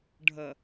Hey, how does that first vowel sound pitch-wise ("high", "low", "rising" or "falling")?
low